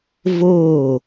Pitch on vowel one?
falling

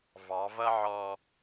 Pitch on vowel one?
rising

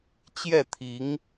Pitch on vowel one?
falling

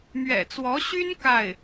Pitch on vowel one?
low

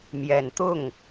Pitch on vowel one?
low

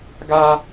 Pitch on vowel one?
high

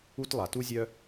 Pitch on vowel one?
high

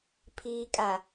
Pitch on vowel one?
low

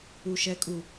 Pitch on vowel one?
low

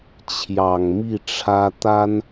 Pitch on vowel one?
low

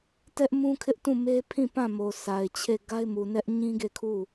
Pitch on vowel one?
high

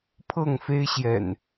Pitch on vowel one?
falling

